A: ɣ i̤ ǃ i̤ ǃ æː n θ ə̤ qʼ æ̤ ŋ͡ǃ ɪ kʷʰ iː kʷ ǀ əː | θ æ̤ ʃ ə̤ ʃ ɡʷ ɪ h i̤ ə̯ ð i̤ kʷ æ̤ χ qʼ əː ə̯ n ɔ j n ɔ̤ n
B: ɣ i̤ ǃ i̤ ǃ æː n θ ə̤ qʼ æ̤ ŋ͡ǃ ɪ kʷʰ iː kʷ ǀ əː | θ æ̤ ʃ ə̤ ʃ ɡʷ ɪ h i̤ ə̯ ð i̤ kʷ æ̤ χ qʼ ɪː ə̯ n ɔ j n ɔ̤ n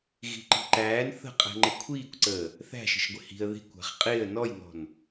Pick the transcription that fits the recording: B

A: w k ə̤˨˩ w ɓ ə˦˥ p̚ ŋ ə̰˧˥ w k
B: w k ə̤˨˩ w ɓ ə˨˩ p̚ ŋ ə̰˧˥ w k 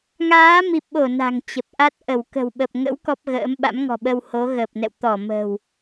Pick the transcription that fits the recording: B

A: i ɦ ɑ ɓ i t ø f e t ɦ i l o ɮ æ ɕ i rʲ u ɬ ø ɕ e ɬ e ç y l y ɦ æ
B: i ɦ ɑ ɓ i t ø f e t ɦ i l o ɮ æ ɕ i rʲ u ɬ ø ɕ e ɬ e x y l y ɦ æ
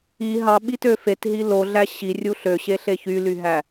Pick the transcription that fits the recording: A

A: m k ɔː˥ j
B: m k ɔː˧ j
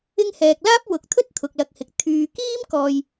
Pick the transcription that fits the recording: B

